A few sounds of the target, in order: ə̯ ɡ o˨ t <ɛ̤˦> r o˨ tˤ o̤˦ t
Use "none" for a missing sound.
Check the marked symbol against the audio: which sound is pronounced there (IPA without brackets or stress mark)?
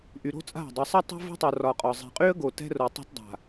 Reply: ɛ̤˦